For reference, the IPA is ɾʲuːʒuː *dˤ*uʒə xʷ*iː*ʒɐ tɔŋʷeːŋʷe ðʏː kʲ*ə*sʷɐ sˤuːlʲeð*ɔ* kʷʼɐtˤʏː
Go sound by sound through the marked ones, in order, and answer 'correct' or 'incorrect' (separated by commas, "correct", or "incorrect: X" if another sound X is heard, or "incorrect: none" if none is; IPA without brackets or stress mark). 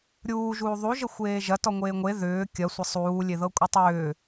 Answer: incorrect: ðˤ, incorrect: eː, incorrect: ɐ, incorrect: ɤ